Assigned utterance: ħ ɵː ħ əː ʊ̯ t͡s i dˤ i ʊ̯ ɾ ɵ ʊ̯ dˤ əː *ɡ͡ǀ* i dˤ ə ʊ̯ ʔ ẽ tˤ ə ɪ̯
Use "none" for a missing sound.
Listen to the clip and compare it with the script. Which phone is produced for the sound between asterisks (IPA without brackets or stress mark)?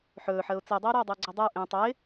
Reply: ɡ͡ǀ